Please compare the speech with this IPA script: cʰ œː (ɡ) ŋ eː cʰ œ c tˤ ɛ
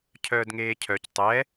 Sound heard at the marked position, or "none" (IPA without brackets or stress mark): d